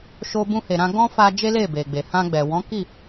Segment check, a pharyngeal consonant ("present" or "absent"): absent